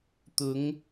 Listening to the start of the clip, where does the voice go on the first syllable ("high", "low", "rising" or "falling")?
rising